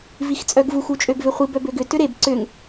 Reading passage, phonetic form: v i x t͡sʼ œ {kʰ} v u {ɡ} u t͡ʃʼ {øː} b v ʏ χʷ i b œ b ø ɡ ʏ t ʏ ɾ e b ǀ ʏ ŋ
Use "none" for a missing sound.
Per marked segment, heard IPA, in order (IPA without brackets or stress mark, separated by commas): ɡ, x, ø